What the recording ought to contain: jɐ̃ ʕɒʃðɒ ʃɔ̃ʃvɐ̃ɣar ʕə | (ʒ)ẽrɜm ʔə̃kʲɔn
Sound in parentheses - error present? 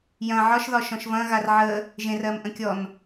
no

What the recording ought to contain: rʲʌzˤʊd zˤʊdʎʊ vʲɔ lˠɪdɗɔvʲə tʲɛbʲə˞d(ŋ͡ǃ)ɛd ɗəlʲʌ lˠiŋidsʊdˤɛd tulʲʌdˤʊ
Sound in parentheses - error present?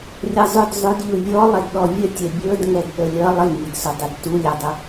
yes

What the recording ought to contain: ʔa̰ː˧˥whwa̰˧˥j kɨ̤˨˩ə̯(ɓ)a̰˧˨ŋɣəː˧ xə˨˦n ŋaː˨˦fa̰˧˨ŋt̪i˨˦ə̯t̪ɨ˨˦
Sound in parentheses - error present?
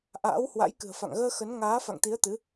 yes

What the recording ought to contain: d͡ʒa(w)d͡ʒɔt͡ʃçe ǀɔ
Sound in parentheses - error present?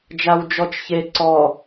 no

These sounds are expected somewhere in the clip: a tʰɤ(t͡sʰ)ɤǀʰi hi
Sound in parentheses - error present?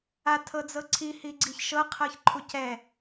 yes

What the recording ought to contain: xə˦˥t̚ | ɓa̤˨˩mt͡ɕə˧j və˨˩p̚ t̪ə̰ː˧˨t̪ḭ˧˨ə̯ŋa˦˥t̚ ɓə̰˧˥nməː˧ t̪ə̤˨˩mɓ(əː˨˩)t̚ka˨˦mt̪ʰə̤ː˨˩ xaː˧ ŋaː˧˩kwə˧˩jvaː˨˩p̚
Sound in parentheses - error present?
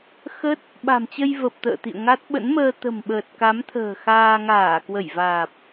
no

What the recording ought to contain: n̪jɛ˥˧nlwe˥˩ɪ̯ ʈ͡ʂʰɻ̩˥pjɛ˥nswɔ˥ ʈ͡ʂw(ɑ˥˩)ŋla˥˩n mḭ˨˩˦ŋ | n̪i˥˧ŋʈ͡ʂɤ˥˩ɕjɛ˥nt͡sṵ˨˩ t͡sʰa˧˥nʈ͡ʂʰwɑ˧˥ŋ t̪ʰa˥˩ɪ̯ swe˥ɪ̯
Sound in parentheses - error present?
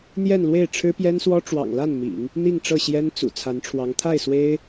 yes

